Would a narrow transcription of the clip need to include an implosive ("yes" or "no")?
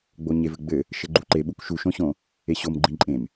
yes